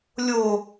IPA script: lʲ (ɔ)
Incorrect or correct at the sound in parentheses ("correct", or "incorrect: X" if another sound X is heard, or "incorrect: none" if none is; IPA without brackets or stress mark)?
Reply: incorrect: o